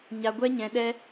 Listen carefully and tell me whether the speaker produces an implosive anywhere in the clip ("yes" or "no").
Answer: yes